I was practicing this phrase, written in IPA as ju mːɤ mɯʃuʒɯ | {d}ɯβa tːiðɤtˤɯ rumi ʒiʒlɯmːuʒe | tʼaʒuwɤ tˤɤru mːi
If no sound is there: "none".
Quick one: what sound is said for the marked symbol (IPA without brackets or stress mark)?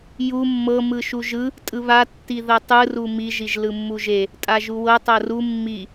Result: tʼ